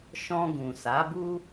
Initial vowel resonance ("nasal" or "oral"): nasal